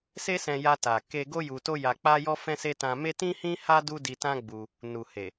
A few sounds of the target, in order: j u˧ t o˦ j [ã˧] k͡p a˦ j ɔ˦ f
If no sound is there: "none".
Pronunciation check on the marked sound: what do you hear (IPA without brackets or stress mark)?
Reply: a˧